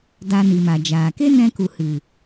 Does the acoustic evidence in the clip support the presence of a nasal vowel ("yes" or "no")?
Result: yes